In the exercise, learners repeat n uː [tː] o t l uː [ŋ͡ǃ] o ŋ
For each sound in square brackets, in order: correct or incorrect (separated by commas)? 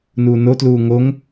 incorrect, incorrect